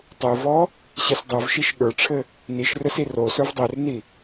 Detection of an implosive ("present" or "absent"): present